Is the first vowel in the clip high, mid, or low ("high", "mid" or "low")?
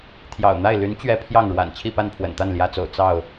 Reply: low